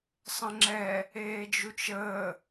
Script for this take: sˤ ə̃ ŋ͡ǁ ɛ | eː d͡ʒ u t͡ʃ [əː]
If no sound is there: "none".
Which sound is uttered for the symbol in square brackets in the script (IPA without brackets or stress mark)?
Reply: əː